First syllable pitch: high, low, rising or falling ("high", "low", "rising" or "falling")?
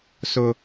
high